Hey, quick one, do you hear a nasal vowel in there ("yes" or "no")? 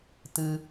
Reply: no